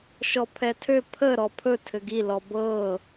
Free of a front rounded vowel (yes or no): no